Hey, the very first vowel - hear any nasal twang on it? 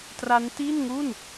no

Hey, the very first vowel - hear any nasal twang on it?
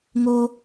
no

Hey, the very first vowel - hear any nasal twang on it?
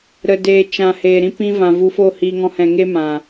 no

